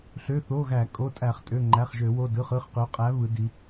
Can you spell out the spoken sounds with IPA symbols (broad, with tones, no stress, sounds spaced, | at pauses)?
ɬ ø˩˧˩ θ o˩˧˩ ɣ æ˧˩˧ kʼ o˩˧˩ tʼ æ˧˩˧ χ tʼ ø˩˧˩ ŋ͡ǃ æ˩˧˩ χ ʒ ø˧˩˧ w o˩˧˩ d ɯ˩˧˩ χ ɯ˩˧˩ χ q ø˩˧ qʼ æ˩˧ β ɯ˩˧ d i˩˧